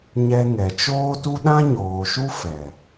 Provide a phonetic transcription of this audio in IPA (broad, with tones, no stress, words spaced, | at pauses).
ɲɛ˧ŋɛ˨t͡ʃoː˦tu˦ ɗã˦ɲoː˨ʃu˦ fɛ˨